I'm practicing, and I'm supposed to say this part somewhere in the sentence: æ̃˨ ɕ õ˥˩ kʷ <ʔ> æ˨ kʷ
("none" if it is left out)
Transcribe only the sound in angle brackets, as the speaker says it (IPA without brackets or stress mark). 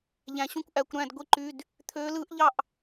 ʔ